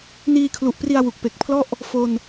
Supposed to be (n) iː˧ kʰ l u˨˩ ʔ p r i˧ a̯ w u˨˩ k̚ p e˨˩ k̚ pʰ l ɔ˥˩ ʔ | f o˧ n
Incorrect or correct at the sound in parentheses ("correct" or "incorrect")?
correct